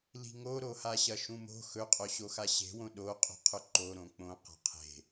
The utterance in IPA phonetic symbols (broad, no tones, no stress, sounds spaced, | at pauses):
l i̤ ŋ o ɾ o h a ɕ ɐ ʃ ũ m o̤ x ɵ qʼ o ɕ o x a ɕ e̤ w õ ɗ o qʼ ṳ qʰ ɵ ǃ o ɾ õ k͡p õ q a̤ qʰ e̤